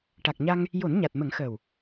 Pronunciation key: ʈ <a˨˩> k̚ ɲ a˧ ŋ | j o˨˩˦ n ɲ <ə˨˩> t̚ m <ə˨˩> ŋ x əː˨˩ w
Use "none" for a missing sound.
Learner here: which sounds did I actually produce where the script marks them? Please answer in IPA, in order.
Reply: a˨˩, a˨˩, ə˨˩˦

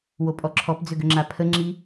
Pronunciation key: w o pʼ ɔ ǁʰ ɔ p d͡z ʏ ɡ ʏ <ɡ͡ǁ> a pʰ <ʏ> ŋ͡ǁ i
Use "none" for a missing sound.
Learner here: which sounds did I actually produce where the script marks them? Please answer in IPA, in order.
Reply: ŋ͡ǁ, ə

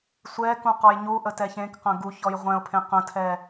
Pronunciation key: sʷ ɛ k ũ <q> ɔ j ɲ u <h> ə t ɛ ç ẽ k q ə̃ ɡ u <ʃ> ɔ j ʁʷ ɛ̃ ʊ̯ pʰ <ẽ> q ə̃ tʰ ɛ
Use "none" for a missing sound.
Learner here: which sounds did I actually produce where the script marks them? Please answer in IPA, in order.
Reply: q, ʔ, ç, ẽ

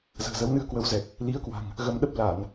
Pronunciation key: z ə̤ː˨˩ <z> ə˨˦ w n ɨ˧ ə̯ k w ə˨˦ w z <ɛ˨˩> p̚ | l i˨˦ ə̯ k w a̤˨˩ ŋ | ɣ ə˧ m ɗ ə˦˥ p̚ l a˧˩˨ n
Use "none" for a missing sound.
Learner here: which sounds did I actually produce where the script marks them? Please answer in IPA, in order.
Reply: z, ɛ˨˩

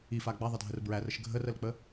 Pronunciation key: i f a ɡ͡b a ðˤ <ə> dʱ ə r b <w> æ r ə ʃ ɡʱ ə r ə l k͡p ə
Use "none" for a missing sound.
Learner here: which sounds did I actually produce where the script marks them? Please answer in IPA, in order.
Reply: ə, ɹ

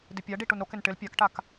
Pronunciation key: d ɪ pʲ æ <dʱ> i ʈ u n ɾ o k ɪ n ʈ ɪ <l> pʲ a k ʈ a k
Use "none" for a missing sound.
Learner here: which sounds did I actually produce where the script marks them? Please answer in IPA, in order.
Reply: ɖ, l

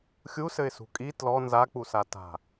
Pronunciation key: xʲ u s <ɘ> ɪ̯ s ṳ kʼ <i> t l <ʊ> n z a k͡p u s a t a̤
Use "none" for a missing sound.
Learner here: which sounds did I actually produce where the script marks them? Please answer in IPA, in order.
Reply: ɘ, i, ɔ

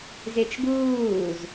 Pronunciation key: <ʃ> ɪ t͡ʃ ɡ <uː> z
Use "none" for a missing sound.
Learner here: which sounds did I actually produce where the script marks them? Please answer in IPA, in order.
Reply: z, uː

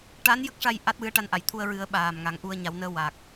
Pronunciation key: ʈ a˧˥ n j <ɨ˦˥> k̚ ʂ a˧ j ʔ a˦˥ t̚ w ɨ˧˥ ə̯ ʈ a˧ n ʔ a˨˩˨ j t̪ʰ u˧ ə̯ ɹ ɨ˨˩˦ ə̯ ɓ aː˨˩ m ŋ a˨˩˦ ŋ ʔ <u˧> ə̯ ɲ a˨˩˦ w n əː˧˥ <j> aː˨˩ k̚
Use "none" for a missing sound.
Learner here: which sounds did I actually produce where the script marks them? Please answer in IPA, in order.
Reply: ə˦˥, u˧, w

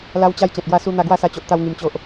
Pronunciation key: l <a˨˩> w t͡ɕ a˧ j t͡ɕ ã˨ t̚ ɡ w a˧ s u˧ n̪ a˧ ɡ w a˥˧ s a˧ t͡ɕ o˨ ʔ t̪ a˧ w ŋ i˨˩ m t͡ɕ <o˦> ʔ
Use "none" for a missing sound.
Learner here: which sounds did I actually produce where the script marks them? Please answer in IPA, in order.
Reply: a˧, o˨

